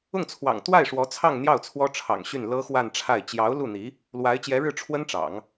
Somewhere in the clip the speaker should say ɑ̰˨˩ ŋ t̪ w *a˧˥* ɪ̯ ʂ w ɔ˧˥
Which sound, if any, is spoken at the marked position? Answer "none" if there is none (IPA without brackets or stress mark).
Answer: a˥˩